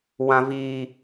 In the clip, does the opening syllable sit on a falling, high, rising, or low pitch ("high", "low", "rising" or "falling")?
high